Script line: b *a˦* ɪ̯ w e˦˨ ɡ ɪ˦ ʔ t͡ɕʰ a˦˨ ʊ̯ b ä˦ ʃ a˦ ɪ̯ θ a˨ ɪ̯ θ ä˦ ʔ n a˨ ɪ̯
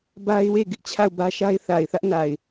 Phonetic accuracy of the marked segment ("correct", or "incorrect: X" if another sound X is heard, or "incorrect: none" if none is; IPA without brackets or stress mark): correct